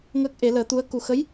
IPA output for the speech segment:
ŋəː˦˥k̚ʔe˨˩˦ ləː˨˩˦t̪u˧˥ə̯ ku˨˩xə˧˥j

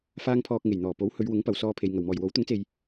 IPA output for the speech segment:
faː˧ŋpʰɔː˨k̚ŋe˨˩jn̪ɔː˨˩ po˨˥whɵ˨˧ɥwʊ˨˥ŋ pɐ˨˧wsɔː˧pʰe˨j ŋɐ˨˩wmɔː˨˩j wo˨˥wt̪ʊ˨˥ŋt͡se˨j

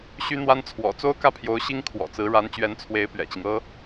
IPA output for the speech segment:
ɕy˥n̪wa˥n t͡sʰwɔ̰˨˩t͡so˥ʊ̯kä˥˩pʰjo˧˥ʊ̯ ɕi˥ŋ kʰwɔ̰˨˩t͡sɹ̩˧˥ ɻa˧˥nt͡ɕɥɛ˧˥nt͡sʰwe˧˥ɪ̯ pɥɛ̰˨˩t͡ɕi˦ŋ ɤ˥

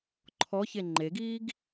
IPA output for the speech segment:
ǃʰɔçe ŋ͡ǃeɡiːɡ

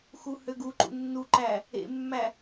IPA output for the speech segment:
xuhøɡuǃṵ nːuǃæ | ḛmːæ

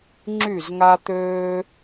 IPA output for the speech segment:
ŋ͡ǁy˥˩zŋa˥t̪øː˥

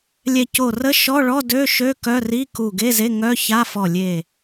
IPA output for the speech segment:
lʲɛ˧˩ co˧˩rə˧˥˧ ʃɔ˧˥˧ɭɔ˧˥˧ dø˧˥˧ʃø˧˥˧ kœ˧˥˧ri˧˥˧ku˧˩ ɡe˧˥˧ze˧˥˧ ŋœ˧˥˧ ça˧˥˧fɔ˧˩lʲe˧˩

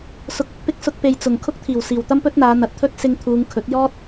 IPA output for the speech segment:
sʊ˨k̚ʊ˨˥k̚ pɪ˧k̚sʊ˧k̚ pe˨jt͡sʊ˨˩ŋ kʰʊ˥k̚t̪ʰiː˨˩wsiː˨˩w t̪ɐ˥mpɵ˥t̚n̪aː˨˧ n̪ɐ˨˥t̚t̪ʰɵ˥t̚ sɪ˧ŋt̪ʰuː˨˧ŋ kʰɵ˨˥t̚jɔː˥t̚

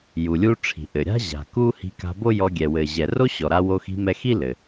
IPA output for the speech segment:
ju˩lʲu˧ʈ͡ʂʰi̤˩ ʔɘ˩ɾʲa̤˥ ʑa̤˩ ku˥ hi̤˧ ka̤˧bo˥jɔ˧ ɡʲɛ˩wɘ˩ ʑɛ˩ro˥ɕɔ˩ ɾa˧wo˧ xi̤˧mɛ˧xi˥ lɘ˩

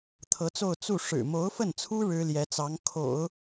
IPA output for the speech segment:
t̪ʰɤ˧˥t͡so˥˧ʊ̯ t͡su˥˩ ʂɻ̩˨˩mo˧˥ʊ̯fə˥˩nt͡sʰu˥ ɻɻ̩˥ljɛ˧˥t͡sɑ˧˥ŋ kʰo̰˨˩˦ʊ̯

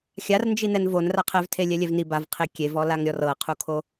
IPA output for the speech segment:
xʲarnd͡ʒinɛn von raqʰɛv tʰelʲɛlʲɛvni bavqʰe kʲevɔlaŋɾʲɔr ɤqʰukʰo

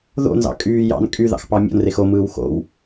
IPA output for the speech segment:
ðo̰nzɑ̰ kʼyː jɑ̰n kʼyðɑ̰xpɑ mʲo̰nrex omɯːw xo̰w

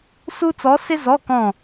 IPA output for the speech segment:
su˥ t͡sɔ˧˥sɪ˥zɔ˧˥˧kɔ̃˦˨

